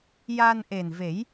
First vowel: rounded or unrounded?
unrounded